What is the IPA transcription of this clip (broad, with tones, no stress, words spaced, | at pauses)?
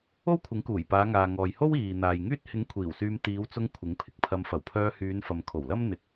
o˥wkʷʰɪ˨˥ŋkuː˨˩jpaː˨˧ ŋaː˨ŋɔː˨jho˥w iː˨n̪aː˨jŋyː˥t̚ hɪ˨˥ŋ kʷʰiː˨˩wsyː˧m t̪iː˨˧wt͡sʊ˧ŋ kʷʰɪ˨˥ŋpʰɪ˨k̚pʰɐ˧m fɐ˨˩wpʰœː˧hyː˨˧nfɐ˨m kʰo˨˩wlɐ˥m n̪ɪ˧k̚